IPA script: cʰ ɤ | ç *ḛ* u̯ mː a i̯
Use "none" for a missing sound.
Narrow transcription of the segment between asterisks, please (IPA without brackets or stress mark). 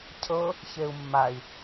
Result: e